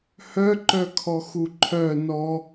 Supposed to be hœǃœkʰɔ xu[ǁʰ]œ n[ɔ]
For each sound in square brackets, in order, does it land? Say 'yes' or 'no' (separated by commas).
no, yes